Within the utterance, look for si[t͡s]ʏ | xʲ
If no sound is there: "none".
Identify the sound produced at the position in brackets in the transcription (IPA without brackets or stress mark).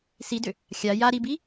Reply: d